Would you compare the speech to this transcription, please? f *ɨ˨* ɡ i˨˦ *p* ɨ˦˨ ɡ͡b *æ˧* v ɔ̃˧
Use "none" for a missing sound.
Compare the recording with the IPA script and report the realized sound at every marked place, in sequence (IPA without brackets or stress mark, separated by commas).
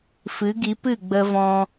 ɨ˨˦, p, ə˧